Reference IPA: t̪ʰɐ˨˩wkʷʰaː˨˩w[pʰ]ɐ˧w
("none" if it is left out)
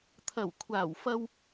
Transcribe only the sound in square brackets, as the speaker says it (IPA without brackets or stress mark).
f